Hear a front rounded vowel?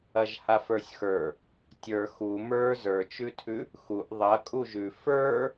no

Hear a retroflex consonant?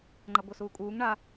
yes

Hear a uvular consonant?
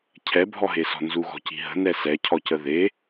no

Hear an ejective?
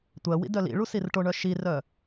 no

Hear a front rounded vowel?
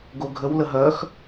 yes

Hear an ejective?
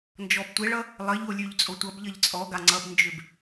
yes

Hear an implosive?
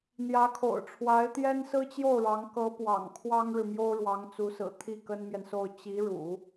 no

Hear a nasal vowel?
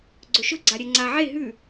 no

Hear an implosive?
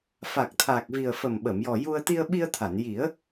yes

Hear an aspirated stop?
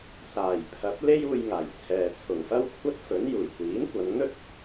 yes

